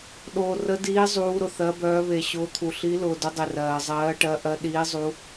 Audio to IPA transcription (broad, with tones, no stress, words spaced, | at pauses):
ɗoː˧ rə˦˥diː˦˥ zˤuː˦˥ɾʊ˧θɜ˦˥bœː˦˥ βe˧ɕʊː˦˥t̪ʰu˧ ɬi˦˥ lʊː˧dʊ˦˥dˤe˧ rɜː˧ zˤɜː˦˥ʈɜ˦˥ʔɜ˦˥ ɗiː˦˥zˤu˦˥